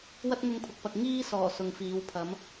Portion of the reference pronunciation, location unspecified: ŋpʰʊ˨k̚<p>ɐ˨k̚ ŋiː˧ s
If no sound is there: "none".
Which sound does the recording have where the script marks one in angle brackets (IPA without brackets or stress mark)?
p